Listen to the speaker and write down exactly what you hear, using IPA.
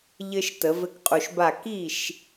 ʎ ɘ˦ ʃ t ə˨˩˦ v ɘ˦ k qʼ u˨ ʃ b a˥˩ k i˥˩ ʃ

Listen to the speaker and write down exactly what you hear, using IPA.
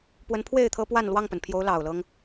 p w ə˨˦ n pʰ w e˥˨ ɪ̯ t̪ʰ ɤ˦ p w a˥˨ n l w ɑ˥˨ ŋ p ə˩ n pʰ j o˨˦ ʊ̯ l ɑ˨˩ ʊ̯ l ɤ˦ ŋ

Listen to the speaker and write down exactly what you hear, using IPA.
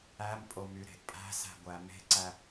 æ m pʼ o m y ɾ e̤ ʔ pʼ æ̤ s æ̤ ɡʷ æ m e̤ ǀ æ

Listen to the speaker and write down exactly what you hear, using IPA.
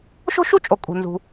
ʃ o̤˥ ʃ u˥ t͡ʃʼ o˩ kʼ ṳ˩ n z ṳ˩

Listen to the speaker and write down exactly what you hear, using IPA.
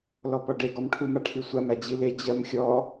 l ɔ p ɔ ɖ e ɡ ɔ m ʈʰ u m a ʈʰ i sʷ a m æ d͡ʑ i l e d͡ʑ ɜ m xʲ ɔ

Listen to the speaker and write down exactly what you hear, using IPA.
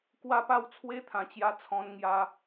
k w a˥˧ p a˥˧ w t͡sʰ w e˦ t̪ʰ ã˨˩ t͡ɕ j a˧ t͡sʰ ɔ̃˧ n ŋ j a˧

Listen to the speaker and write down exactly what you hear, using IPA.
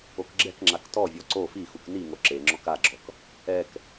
o k ɡ͡ǁ ɛ k ŋ͡ǁ a k t ɔ vʲ ɔ ǀ o f i x u k n i ŋ o ǁ e ŋ͡ǁ ɔ k a ɡ͡ǁ ɔ k | ɛ k

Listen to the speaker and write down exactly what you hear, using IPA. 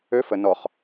ø f ə n ɔ χ

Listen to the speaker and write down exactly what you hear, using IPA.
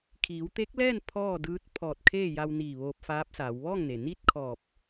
kʰ iː˩˧ w t̪ e˧˥ k̚ l ɛː˥˨ n pʰ ɔː˥˨ d ɯː˧˥ t̚ pʰ ɔː˧˩ t̚ kʰ eː˥˨ j a˧ w n iː˧˩ ʋ oː˧ p̚ f aː˧˥ p̚ s aː˩˧ w ʋ ɔː˥˨ ŋ n e˩ n iː˥˨ t̚ kʰ ɔː˧˩ p̚

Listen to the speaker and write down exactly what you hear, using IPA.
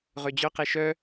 ʁ ø d͡ʑ œ q e ʃ œ

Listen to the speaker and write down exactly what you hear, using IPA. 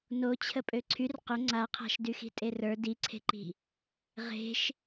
n o t͡ɕʰ ə pʼ ø ǀʰ y r q ɵ ŋ͡ǀ a qʰ a̤ ʃ d y x i̤ tʼ e r ə˞ d i ǀʰ e̤ ǃ i̤ | ʁ e̤ ʃ

